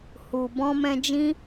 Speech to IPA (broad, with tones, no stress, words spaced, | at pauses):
hu˨ bɔ̃˧mɛ̃˧d͡ʒĩ˦